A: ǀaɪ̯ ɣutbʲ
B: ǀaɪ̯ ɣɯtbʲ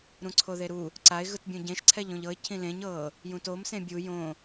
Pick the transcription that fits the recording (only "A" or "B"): B